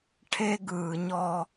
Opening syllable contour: high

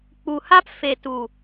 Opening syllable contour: low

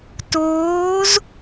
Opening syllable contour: rising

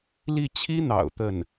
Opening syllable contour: falling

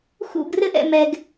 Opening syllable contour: falling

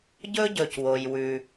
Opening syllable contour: high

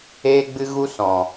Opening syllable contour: high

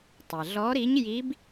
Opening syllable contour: low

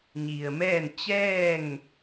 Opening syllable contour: low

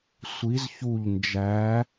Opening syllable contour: rising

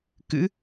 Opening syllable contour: rising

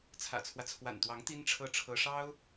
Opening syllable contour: low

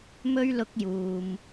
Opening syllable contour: high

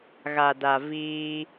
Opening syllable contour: low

